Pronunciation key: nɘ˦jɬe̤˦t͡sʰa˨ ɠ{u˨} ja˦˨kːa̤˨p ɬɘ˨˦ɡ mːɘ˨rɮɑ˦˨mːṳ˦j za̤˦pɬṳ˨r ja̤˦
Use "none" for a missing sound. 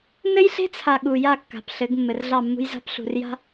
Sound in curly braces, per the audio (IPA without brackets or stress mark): u˨